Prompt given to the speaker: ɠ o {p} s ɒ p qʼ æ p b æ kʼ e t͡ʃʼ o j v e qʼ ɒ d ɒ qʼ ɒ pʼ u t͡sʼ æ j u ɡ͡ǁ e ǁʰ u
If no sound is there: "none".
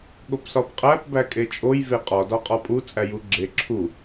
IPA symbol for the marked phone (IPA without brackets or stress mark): p